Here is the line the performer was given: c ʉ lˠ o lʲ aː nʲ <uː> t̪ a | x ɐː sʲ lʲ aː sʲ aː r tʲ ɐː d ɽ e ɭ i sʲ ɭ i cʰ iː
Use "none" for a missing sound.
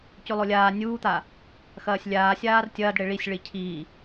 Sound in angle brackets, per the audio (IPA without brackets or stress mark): uː